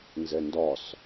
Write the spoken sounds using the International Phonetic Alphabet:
n z ɛ n d ɒ s

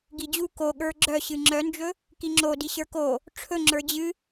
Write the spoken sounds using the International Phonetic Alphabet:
ɡ i d͡ʑ u k o ɠ ə˞ ɡ͡ǁ œ ɕ ɨ ŋ͡ǁ œ n d͡ʒ ɵ | k i ŋ͡ǁ o d i ɕ ə˞ k o | ʈ͡ʂʰ ɵ ŋ͡ǁ ə˞ d͡ʑ ɨ

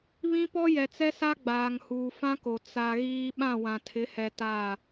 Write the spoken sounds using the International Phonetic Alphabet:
β ĩ˦ p ɔ˦ j ɛ˨ t͡s ɛ˦ s a˦ ɡ͡b aː˨ ŋ h uː˨ f ã˦ k o˨ t͡s a˨ ɣ iː˦ ɓ ã˦˨ w ã˨ tʰ ɪ˨˦ h ɛ˨ t a˦˨

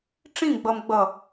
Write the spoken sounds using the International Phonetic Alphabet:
ʈ͡ʂ ĩ ɡ͡b ʌ m ɡ͡b ʌ

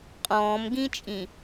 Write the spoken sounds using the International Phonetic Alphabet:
qʼ ɔ̃ː m ɡ ĩ t͡ʃʼ ĩ

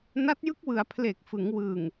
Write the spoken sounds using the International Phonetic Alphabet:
n a˦˥ t̚ j ɯ˦˥ k̚ w ɯ˩˦ a̯ pʰ l e˨˩ k̚ f ɯ˩˦ ŋ w ɯ˨˩ ŋ

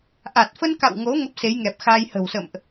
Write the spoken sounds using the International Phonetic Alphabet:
ʔ a˨˩ t̚ f ə˧ n k a̰˧˨ w ŋ o˨˦ ŋ ə˦˥ p̚ s e˨˦ j ŋ ɛ˨˩ p̚ x aː˧ j h ə̤˨˩ w s ə̰˧˨ m ʔ

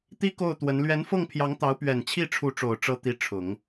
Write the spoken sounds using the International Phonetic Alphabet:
t̪ i˥ k o˥˩ ʊ̯ t̪ w ə˧˥ n l ɥ ɛ˧˥ n f ɤ˥˩ ŋ pʰ j ɑ˧˥ ŋ t̪ ɑ˧˥ ʊ̯ p ɥ ɛ˨˩ n t͡ɕʰ i˥˩ ʈ͡ʂʰ u˧˥ ʈ͡ʂ o˨˩ ʊ̯ ʈ͡ʂ ɤ˧˥ t̪ i˥˩ ʈ͡ʂʰ ʊ˨˩˦ ŋ

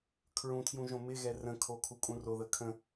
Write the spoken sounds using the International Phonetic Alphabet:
kʰ ɹ ũ tʰ j ũ ʒ õ m ɪ ɣ ɛ r ə̃ kʰ o kʰ u kʼ ũ r o ð ə kʰ ə̃

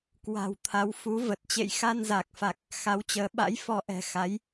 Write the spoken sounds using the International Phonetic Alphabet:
k w a̤˨˩ w t̪ʰ a˨˦ w f u˨˦ v ə˨˩ t̚ t͡ɕ ḛ˧˨ j x a˧ n z a˨˩ k̚ f a˨˩ k̚ | x a˨˦ w t͡ɕ əː˨˦ ɓ a̰˧˥ j f ɔ˧ ʔ ɛ̤˨˩ x a˨˦ j

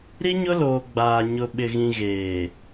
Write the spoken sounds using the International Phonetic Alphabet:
ɾ i˦ ɲ ʊ˦ l oː˨ ɡ͡b aː˨ ɲ ʊ˨ ɓ ɪ˨ ɣ ĩ˨ ɣ eː˨

